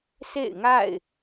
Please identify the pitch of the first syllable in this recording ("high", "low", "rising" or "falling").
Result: falling